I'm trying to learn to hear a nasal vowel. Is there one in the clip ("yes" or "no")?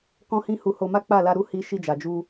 yes